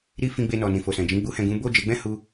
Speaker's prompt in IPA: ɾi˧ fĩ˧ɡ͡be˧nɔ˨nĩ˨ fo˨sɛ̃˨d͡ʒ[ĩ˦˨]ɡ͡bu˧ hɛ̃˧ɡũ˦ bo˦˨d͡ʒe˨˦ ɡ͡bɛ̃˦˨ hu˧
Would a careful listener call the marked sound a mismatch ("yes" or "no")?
yes